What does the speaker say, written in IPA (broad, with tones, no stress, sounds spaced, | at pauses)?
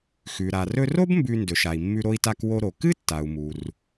x ʉ˩ ɾ a˩ r ɵ˧ r o˥ b m b ʉ˧ n d ɵ˩ ʃ a˩ i̯ mː ʉ˧ ɾ o˧ i̯ t a˧ k w o˧ ɾ o˩ k ɨ˥ tː a˩ u̯ m u˩ r